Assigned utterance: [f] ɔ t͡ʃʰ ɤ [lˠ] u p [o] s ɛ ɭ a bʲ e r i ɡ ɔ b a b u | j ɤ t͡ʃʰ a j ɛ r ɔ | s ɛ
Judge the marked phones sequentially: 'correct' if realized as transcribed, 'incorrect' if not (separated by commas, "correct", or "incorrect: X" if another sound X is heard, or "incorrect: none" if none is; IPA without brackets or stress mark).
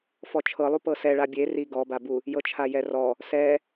correct, correct, incorrect: ɤ